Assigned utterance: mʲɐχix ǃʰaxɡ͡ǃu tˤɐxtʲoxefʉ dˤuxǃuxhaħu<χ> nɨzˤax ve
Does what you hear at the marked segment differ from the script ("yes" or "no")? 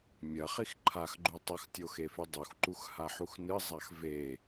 yes